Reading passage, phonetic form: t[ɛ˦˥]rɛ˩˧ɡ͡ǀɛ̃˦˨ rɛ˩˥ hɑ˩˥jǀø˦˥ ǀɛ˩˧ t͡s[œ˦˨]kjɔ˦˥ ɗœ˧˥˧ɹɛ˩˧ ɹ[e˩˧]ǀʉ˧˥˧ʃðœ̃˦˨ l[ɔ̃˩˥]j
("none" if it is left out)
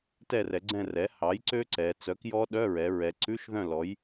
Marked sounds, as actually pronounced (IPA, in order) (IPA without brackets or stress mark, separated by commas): ɛ˦˨, œ˩˥, ɛ˩˧, ɔ˩˥